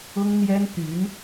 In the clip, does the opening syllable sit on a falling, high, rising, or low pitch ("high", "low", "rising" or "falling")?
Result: high